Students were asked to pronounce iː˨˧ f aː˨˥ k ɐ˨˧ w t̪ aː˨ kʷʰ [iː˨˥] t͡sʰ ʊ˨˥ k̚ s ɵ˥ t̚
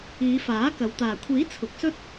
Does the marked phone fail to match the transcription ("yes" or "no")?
no